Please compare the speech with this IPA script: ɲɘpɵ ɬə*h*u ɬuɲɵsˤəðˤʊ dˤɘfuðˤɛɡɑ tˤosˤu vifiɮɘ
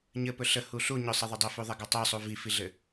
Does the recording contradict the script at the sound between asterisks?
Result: no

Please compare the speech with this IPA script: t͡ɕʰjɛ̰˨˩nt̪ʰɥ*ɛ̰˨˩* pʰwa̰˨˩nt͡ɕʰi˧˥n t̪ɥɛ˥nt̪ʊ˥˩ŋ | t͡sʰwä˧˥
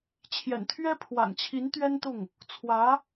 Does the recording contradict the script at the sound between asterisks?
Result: yes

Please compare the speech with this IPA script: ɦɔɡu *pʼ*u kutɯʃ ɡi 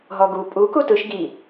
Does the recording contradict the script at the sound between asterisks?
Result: no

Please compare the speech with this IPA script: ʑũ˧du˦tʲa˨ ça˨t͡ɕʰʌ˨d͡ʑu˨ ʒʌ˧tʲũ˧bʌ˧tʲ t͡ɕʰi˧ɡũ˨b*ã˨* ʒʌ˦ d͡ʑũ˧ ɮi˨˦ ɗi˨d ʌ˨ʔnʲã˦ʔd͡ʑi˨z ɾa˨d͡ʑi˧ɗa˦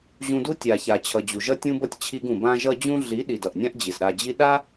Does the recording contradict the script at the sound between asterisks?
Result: yes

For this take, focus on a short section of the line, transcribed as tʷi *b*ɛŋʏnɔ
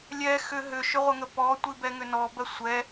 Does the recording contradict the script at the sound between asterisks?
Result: no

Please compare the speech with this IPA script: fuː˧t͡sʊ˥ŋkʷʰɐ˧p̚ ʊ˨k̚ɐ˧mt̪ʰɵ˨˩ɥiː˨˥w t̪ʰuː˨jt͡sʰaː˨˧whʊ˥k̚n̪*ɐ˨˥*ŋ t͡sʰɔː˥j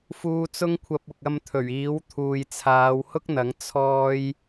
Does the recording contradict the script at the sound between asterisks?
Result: no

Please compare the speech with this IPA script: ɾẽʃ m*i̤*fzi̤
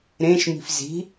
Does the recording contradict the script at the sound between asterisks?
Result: no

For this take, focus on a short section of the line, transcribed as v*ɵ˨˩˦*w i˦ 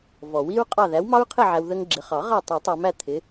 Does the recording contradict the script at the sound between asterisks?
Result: yes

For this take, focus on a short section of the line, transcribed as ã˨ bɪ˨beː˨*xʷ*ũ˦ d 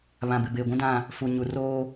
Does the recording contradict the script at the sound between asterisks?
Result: yes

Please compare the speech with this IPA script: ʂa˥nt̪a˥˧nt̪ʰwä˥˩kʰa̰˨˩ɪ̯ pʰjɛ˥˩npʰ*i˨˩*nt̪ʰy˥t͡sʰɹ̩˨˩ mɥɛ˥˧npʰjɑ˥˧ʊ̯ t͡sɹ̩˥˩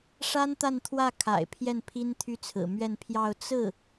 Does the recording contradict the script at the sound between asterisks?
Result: yes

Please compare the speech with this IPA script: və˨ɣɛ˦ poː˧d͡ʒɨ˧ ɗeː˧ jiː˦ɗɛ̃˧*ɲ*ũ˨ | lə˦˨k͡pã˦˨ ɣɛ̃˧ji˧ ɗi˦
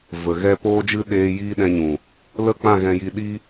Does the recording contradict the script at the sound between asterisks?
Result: no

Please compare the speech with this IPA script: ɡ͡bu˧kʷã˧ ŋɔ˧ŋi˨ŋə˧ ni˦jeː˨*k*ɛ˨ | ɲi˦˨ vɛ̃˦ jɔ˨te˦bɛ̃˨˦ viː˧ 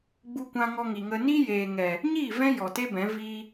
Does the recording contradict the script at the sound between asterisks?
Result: yes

